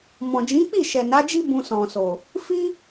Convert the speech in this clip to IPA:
mɔ̃˨d͡ʒĩ˨˦k͡pi˦˨ ʃɛ˨na˨˦d͡ʒi˦ bũ˧sɔ̃˨so˨ | fi˦

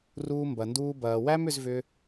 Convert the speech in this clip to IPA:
ruː˧ mbɐ˨nduː˧ bɐː˨ wæ˦mʏ˧zvʏ˧

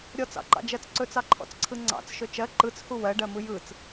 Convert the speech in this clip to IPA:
ɾʲɔt͡sɑ̰ǃɑ̰d͡ʒɜt͡s ǀɵt͡sɑǃʰɔ̰t͡sǀʰɯ ŋ͡ǀɑ̰t͡sʃɵ t͡ʃɜ ǃɯt͡shu wɜɖɜmɯ jɯt͡s

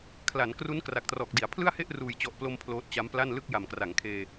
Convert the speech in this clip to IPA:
kʰla˩˦nkru˦˥n kra˨˩k̚trɔː˨˩k̚di˩˦a̯ pʰlɯ˥˩a̯he˥˩ʔ ruː˨˩jt͡ɕɔ˨˩ʔplo˧m pʰloː˦˥t̚t͡ɕa˦˥mpla˥˩n lɯ˥˩k̚ ja˨˩mkra˩˦ŋkʰeː˧

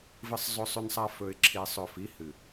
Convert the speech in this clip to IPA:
vɨ˦sˤzˤɵ˦sˤʉ˦nsˤa˦ fɵ˨ɪ̯ǁʰi˨sˤɵ˨ fi˨˦hɨ˨

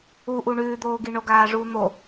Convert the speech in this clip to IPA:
uʔu ɳʉːd̪oːɡi ɳoɡaːʐuːn̪o

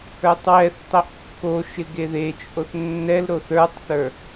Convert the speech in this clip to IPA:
ə˞tˤwɛθtˤɛʔ kːoʃɪ ɡeðet͡ʃʼoθ nːɛl ɾoθə˞tˤθə˞

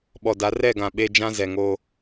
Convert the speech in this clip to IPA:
ɓɔ˨da˨˦ rɛ˦˨ɡã˨ ɓe˦ d͡ʒã˦zɛ˨ŋo˦

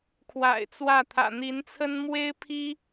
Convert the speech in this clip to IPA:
kʰwa̰˨˩ɪ̯t͡swä˥˩ t̪ʰä̰˨˩n̪i˧˥nt͡sʰə˥n mwe˥ɪ̯pʰi˥

